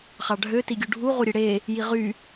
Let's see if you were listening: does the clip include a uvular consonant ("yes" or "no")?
yes